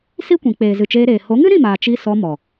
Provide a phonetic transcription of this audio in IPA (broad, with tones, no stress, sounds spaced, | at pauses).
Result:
s i˦ kʷ ĩ˨ k͡p eː˨ z ɨ˨ t͡ʃ eː˧ ɾ eː˨ h o˨˦ ŋ ɨ˦ ɾ ĩ˦˨ m aː˨ t͡ʃ i˧ s ɔ˧ m ɔ˨